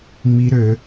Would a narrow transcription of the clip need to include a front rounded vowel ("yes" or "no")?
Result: yes